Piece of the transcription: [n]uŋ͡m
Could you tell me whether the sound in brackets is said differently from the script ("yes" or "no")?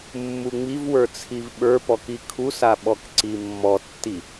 yes